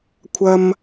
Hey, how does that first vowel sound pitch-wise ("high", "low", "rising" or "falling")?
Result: high